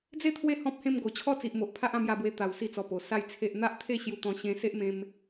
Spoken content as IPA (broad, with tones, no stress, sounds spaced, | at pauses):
d͡z e˥˧ t̪ʰ w e˦ h ɔ̃˦ p̚ h ẽ˧ m ɡ o˨˩ t͡ɕʰ ɔ˦ t͡s i˨ ʔ m o˨ ʔ pʰ a˦ ʔ ã˥˧ m j a˧ b w e˧ t̪ a˨˩ w s i˧ t͡s ɔ˨˩ p o˨˩ s a˥˧ j t͡sʰ e˦ ʔ n̪ a˦ ʔ t̪ʰ e˥˧ ɕ j u˧ t̪ ɔ̃˧ ɕ ẽ˧ s e˦ ʔ m ẽ˧ m